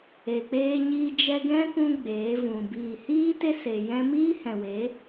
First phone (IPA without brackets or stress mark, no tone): e